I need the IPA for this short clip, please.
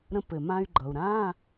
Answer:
ɾ ə̃˧ p ɘ˩ m ã˧ y̯ ɡ͡ǃ ʌ˩ u̯ ɾ ã˧˥˧

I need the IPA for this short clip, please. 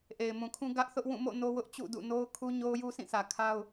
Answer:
ʔ e˨ ɪ̯ m ũ˨ kʰ ũ˦ ɡ ä˦ ʔ θ ʊ˦ ʔ w ũ˦˨ m o̰˦˨ n o˦ w ʊ˦ ʔ t͡ɕ ṵ˦˨ d ṵ˦˨ n o˦ ʊ̯ kʰ u˦ ɲ o˦ ʊ̯ j u˦ sʰ ĩ˦˨ sʰ ä˨ kʰ a˦ ʊ̯

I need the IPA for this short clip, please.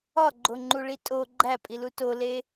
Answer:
ɒ ɡ͡ǃ o ŋ͡ǃ u ɭ i tʼ o ɡ͡ǃ æ pʼ i l u t o l e

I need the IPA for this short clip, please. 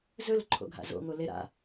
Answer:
z ɵ l ǃʰ o̰ ɡʱ a̰ z o̰ ŋ o l e ɾ a̰

